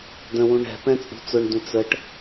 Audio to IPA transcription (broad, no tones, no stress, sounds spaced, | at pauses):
d ə̃ w ũ ɳ ɛ̤ p ɛ̃ t͡sʼ ṳ t͡s ʊ ɳ d ũ t͡s ə ʈ